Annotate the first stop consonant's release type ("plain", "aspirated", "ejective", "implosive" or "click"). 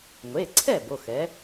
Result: click